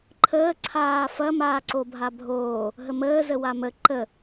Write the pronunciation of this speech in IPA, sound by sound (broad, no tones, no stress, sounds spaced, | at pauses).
ǃʰ əː ǀʰ aː f ɐ m aː ǀ o bʱ a bʱ oː | ɦ ə m əː z ə w a m ə ǃ ə